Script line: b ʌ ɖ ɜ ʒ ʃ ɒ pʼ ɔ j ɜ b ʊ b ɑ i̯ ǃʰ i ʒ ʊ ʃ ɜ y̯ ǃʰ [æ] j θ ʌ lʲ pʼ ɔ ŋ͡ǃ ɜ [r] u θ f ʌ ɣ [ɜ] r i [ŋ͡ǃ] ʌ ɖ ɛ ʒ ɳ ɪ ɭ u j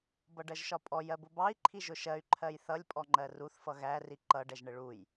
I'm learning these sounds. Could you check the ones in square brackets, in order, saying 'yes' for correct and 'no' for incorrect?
no, yes, no, no

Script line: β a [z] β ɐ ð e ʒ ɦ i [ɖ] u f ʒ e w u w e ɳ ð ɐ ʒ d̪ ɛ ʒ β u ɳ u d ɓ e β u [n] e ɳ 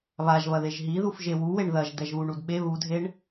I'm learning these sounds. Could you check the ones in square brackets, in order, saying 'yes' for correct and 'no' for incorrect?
no, no, no

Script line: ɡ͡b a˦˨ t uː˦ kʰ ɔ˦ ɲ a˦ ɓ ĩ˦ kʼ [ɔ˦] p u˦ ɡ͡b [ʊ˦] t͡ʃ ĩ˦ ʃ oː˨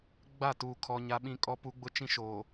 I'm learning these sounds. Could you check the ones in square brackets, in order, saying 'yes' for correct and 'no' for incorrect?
yes, yes

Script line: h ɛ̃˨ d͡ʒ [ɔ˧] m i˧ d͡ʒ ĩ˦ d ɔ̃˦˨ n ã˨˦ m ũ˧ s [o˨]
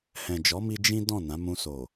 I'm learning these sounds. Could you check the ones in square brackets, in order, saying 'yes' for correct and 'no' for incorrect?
no, yes

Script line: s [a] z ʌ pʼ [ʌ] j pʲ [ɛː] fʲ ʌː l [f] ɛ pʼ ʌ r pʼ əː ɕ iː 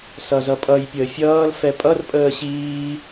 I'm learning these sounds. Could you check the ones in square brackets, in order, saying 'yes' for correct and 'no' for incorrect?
no, yes, no, yes

